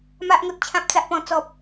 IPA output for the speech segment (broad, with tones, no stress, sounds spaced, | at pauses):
m a˨ ʔ ŋ o˨ t̚ t͡ɕʰ ã˨ p̚ t͡s a˨ ʔ p ɔ̃˨˩ t͡s ɔ˨ p̚